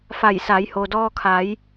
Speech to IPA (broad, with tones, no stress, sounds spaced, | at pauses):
f a˧˩ j s a˩˧ j h o˩ d ɔː˧ kʰ a˩˧ j